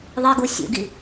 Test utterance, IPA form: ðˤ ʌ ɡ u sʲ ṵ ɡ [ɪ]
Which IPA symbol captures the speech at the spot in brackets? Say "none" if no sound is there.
i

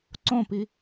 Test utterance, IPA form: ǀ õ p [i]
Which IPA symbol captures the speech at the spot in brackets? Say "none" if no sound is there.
i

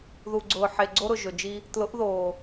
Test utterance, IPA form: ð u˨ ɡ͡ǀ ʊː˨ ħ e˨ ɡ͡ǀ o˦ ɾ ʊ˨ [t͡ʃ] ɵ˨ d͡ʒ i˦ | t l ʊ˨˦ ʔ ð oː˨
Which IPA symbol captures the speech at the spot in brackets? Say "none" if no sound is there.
ʒ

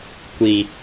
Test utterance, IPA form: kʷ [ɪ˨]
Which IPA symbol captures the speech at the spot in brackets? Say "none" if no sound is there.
i˨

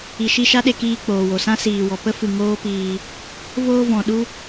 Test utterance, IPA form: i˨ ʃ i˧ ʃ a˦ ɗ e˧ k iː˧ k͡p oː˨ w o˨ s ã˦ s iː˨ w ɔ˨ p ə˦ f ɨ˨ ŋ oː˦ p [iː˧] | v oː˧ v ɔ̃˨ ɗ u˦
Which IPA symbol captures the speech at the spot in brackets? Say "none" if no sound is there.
iː˧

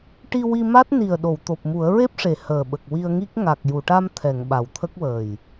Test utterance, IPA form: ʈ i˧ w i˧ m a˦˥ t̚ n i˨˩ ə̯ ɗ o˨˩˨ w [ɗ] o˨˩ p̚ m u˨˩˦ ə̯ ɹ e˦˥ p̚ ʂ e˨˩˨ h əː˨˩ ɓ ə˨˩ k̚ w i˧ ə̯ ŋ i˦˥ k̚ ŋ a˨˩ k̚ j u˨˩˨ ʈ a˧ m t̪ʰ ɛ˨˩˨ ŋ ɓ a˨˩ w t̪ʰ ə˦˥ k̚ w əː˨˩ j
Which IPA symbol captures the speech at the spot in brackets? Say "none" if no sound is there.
t̪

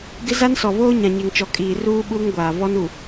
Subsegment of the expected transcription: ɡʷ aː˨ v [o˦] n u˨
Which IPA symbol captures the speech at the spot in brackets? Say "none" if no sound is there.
ɔ˦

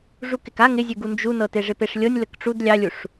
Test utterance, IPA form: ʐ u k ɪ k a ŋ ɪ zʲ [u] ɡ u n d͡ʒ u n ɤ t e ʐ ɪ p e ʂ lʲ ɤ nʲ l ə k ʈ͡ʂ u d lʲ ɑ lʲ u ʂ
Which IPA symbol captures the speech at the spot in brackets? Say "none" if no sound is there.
ʉ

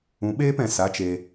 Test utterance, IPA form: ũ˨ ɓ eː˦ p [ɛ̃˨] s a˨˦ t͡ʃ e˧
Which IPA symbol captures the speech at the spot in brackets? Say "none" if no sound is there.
ɛ̃˨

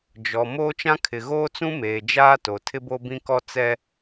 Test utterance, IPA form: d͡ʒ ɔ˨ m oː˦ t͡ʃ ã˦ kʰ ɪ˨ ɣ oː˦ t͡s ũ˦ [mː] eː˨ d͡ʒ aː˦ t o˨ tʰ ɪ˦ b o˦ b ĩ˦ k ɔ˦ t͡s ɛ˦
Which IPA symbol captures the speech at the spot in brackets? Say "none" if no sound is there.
m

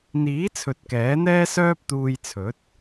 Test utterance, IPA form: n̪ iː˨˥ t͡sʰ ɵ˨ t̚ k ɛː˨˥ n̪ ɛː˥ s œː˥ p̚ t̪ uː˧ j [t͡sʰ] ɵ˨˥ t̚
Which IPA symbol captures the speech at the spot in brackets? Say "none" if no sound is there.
t͡sʰ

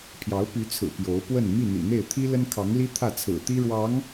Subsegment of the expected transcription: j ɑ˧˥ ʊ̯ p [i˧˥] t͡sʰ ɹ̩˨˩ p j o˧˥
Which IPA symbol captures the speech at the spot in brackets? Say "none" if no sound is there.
y˧˥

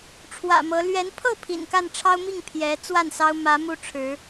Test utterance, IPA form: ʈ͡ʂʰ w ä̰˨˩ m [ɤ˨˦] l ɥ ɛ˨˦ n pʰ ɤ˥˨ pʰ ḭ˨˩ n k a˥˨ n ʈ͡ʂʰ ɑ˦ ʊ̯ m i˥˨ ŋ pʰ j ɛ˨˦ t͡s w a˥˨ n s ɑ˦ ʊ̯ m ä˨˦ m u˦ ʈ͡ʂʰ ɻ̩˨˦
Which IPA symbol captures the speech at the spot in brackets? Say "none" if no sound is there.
ɤ˨˦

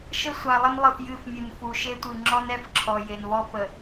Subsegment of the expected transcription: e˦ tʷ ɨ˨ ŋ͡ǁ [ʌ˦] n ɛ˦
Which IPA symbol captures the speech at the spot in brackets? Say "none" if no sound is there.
ɔ˦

